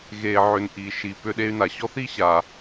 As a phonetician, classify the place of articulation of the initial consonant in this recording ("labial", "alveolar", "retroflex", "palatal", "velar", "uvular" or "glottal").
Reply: velar